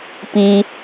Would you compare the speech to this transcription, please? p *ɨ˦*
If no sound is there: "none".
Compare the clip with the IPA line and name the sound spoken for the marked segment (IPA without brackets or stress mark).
i˦